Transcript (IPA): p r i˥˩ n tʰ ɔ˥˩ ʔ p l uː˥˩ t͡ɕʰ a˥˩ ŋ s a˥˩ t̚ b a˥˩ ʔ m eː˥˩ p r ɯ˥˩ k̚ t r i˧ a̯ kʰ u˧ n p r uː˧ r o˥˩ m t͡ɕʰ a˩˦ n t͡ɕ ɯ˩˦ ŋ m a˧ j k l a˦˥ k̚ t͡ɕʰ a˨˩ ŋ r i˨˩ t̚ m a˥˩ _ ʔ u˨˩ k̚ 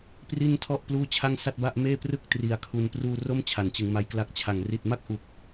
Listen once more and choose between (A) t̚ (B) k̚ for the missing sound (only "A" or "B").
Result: B